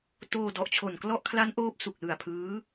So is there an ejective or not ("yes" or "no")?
no